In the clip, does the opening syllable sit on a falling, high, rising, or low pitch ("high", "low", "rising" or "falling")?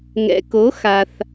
low